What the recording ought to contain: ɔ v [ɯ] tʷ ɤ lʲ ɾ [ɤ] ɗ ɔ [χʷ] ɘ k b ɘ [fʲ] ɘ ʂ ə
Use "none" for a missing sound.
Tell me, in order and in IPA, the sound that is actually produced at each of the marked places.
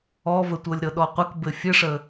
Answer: ə, ɤ, qʷ, fʲ

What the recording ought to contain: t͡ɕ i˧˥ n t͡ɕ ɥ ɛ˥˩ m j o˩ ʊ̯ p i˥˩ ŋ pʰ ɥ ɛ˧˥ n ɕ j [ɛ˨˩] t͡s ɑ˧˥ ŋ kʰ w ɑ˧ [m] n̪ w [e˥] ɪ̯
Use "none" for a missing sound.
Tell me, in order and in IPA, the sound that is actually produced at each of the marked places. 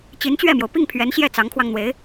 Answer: ɛ˥˩, ŋ, e˧˥

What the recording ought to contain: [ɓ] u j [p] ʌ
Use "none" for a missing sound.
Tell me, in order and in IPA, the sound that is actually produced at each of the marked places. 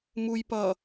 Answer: m, p

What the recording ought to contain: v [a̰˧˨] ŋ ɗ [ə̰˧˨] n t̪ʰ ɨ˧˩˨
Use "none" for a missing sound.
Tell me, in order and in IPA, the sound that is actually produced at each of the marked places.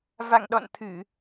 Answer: a̰˧˨, ɔ̰˧˨

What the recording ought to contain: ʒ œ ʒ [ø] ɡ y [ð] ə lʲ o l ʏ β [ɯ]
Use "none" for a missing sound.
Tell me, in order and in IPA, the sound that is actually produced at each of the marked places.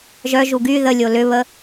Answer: u, ð, ə

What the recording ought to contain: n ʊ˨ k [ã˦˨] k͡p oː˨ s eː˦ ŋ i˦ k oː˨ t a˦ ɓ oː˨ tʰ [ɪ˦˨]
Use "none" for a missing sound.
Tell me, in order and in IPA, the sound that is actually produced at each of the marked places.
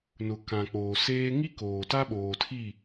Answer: ã˨, i˦˨

